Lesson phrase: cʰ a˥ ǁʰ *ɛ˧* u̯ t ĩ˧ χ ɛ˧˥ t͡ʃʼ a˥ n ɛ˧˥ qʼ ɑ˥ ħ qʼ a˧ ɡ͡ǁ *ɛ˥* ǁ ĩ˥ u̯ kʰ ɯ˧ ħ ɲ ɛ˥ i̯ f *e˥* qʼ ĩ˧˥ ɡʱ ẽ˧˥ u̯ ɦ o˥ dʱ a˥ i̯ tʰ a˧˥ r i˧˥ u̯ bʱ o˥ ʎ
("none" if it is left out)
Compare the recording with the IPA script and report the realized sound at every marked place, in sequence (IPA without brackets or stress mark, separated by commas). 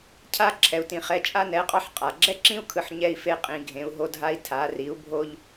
ɛ˧, ɛ˥, e˥